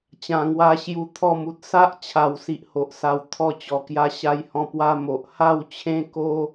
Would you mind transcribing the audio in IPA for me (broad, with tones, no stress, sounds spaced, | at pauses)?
t͡ɕ ã˨˩ ŋ w a˧ ɕ j u˧ t̪ʰ ɔ˥˧ m u˨ t̚ s a˦ ʔ t͡ɕʰ a˨˩ w s i˨ ʔ h o˨ ʔ s a˧ w t̪ʰ ɔ˧ t͡ɕ ɔ˨˩ k j a˧ ɕ a˧ j h ɔ̃˧ p w a˦ m o˨ ʔ h a˥˧ w t͡ɕʰ ẽ˦ k o˦